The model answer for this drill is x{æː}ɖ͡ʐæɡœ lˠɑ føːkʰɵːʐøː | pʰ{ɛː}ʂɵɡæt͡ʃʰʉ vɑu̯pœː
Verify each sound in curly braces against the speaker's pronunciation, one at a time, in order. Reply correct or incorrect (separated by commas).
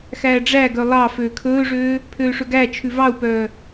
correct, incorrect